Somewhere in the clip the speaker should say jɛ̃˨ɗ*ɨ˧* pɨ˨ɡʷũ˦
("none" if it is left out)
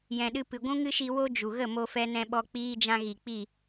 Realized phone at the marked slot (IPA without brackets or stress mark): ɨ˧